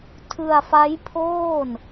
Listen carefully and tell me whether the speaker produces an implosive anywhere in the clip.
no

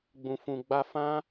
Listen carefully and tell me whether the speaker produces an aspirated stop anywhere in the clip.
no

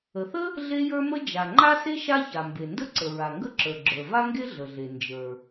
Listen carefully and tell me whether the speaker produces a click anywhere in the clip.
yes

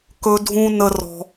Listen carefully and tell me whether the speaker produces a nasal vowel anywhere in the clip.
yes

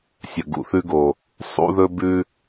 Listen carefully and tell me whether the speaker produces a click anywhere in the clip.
no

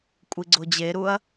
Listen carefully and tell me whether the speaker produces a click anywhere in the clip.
yes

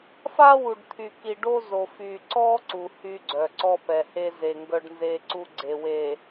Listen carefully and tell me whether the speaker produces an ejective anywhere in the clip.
no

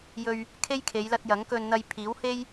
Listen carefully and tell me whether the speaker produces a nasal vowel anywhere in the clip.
no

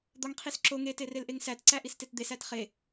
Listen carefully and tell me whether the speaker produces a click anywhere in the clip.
yes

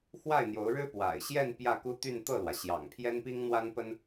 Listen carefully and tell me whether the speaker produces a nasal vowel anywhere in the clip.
no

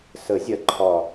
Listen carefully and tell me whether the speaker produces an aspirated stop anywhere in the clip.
yes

